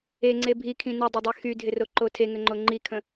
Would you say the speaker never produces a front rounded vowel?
no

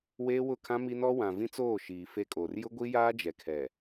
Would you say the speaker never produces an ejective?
no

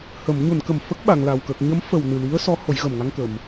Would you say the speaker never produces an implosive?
no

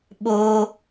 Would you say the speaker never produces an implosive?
no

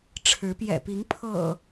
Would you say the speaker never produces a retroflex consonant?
no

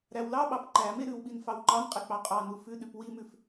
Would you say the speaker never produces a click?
no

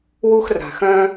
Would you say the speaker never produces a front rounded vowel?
no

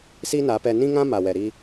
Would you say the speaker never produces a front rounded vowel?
yes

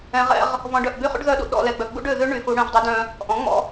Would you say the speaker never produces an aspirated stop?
yes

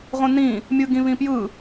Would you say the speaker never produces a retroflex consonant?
yes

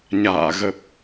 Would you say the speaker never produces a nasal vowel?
yes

